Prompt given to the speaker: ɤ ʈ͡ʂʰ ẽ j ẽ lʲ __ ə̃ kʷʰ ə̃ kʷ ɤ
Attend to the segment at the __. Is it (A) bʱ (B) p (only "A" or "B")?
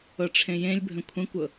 A